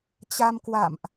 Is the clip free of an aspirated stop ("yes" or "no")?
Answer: yes